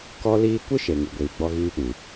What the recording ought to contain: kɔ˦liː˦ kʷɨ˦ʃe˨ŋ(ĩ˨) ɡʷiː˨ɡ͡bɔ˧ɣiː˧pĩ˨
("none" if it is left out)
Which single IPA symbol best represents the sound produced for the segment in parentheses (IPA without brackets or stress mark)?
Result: i˨